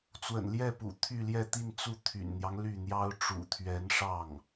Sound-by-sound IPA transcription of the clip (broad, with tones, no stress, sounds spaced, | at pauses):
t͡s w ə̰˨˩ n l j ɛ˥˩ p ṵ˨˩ t̪ʰ y˥˧ l j ɛ˥˧ t̪ i˥˧ n t͡s u˥˩ t̪ʰ y̰˨˩ n n̪ j ɑ˦ ŋ l y˥˩ n̪ j ɑ˥ ʊ̯ ʈ͡ʂ ṵ˨˩ t̪ʰ ɥ ɛ˧˥ n ʂ ɑ˥˩ ŋ